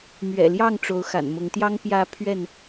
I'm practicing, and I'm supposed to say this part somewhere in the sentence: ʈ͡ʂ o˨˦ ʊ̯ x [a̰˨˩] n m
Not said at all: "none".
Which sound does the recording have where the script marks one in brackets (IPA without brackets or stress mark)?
a̰˨˩